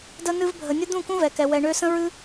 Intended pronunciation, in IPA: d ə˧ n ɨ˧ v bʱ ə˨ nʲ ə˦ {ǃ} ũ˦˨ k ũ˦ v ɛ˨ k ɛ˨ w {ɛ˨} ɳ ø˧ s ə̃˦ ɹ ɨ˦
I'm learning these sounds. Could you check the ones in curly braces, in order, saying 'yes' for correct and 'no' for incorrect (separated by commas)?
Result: no, yes